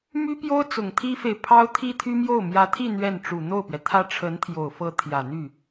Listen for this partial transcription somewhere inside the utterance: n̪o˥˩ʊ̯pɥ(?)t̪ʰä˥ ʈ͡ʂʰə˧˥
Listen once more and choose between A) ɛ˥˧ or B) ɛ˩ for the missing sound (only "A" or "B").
B